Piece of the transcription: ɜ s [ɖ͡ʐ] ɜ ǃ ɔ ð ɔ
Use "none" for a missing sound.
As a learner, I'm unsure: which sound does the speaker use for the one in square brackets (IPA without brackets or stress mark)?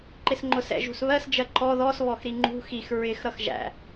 d͡ʒ